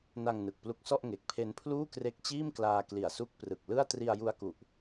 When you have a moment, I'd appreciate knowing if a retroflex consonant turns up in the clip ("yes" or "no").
no